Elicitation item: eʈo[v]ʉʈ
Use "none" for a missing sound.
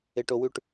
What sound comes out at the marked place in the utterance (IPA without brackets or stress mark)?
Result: w